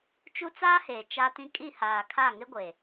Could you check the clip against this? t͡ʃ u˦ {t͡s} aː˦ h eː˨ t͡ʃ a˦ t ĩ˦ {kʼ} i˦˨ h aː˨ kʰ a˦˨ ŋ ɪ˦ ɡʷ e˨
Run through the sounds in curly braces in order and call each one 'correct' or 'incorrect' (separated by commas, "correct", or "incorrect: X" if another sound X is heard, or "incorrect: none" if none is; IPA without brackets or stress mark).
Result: correct, correct